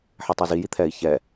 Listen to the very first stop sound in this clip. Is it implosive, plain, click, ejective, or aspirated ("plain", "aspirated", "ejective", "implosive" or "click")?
plain